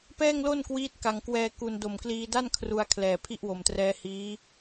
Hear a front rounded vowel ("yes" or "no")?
no